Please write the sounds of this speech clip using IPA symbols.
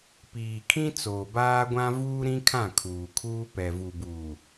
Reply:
p iː˨ kʰ ĩ˦ t͡s oː˨ b aː˦ ɡʷ ã˦ v uː˦ ɾ ĩ˦ kʰ ã˦˨ kʰ uː˨ kʰ uː˦ p ɛ˨ v u˨ b uː˨

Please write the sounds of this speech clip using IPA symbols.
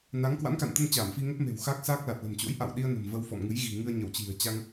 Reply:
n a˨˦ ŋ k w a̰˧˥ n k a̰˧˨ n t̪ ə˧ n t͡ɕ aː˧˩ m f i˧ ŋ ə˦˥ p̚ m e̤˨˩ w x a˦˥ k̚ s aː˦˥ k̚ l a˨˩ t̚ l ə̤˨˩ m t͡ɕ o̰˧˥ j ʔ a̰˧˨ w ɗ i˧ ə̯ n ə̤˨˩ m v ə˧ w f ɔ̰˧˨ m ŋ ɨ˨˦ j ɣ i̤˨˩ ŋ ɨ˧ ə̯ ɲ ə˧˩ w t͡ɕ i̤˨˩ ə̯ t͡ɕ a˧ ŋ

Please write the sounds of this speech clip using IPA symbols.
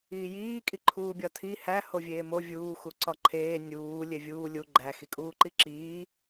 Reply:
iː j iː kʼ i ǃʰ uː bʲ ɒ tʰ i h æ h o vʲ eː m o vʲ uː x u ǀ ɒ ǃʰ eː nʲ uː lʲ e vʲ uː lʲ u ɡ͡ǃ æ x i kʼ uː ǃ i ǁ iː

